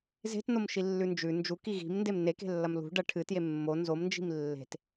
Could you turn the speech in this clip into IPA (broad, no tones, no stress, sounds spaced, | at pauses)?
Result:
z e̤ t n o m ʃ i lː ʉ n d͡ʒ ʉ n d͡ʒ u k i ɣ i̤ m n d e m n e k e̤ lː ɐ m l ṳ ɖ ɐ ʈʰ ɨ t j e mː o n z o m n d͡ʒ i̤ m lː e̤ t